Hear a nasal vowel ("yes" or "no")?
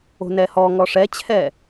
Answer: no